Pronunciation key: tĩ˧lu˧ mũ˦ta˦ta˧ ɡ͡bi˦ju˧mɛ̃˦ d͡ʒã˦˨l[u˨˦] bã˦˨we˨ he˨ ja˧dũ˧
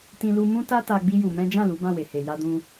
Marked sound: correct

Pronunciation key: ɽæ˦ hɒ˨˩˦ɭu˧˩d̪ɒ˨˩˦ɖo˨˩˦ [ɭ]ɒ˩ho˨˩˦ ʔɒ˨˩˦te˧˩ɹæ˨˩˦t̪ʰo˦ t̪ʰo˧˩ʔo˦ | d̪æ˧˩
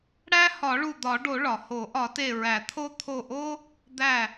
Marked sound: correct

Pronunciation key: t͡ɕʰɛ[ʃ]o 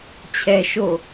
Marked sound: correct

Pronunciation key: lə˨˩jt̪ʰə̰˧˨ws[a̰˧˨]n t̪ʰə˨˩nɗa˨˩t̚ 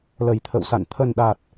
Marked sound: correct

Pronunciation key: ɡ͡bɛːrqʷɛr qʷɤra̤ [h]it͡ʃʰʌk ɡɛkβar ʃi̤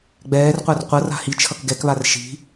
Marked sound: correct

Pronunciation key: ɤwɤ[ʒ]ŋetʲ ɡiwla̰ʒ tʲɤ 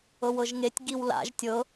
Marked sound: correct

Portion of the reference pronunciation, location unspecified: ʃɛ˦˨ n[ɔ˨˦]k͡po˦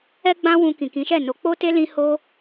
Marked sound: incorrect: o˨˦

